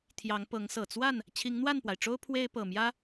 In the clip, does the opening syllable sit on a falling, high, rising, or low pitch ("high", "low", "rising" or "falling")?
rising